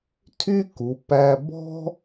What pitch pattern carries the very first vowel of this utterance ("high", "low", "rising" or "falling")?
high